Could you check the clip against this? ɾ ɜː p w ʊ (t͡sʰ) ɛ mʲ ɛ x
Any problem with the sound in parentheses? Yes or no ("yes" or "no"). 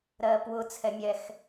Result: no